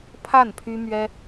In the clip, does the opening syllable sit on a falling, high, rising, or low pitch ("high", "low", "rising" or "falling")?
falling